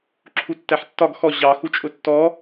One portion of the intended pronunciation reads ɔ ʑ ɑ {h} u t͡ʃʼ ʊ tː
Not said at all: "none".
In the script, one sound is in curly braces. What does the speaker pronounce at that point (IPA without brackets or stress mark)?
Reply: x